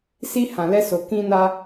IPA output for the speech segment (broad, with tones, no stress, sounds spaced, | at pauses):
s i˧ h ã˨ l ɛ˧ s o˨ k ĩ˧ n a˧